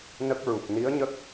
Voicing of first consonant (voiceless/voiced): voiced